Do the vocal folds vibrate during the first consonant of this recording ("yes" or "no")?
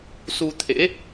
no